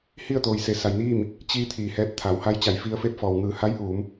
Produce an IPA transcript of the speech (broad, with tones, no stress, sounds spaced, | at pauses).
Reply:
h i˥˨ ə̯ t̪ oː˩ j s e˩˧ s a˩ j n iː˥˨ m | t͡ɕ i˧ t̪ʰ iː˩ h ɛː˧˥ p̚ t̪ʰ a˩˧ w h a˧˥ j t͡ɕ a˩ j f i˧ ə̯ f e˥˨ p̚ f ɔː˩ w ŋ ɯː˩ h a˧˥ j ʔ uː˩˧ m